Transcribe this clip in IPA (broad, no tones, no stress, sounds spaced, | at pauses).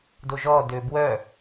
d o ʒ ɔ d ø b w œ